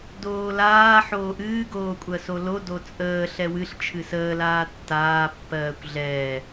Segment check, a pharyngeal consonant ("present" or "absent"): present